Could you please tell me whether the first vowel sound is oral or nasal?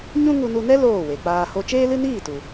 nasal